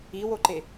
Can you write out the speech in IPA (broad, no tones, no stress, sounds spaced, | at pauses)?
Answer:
i w o ǃ e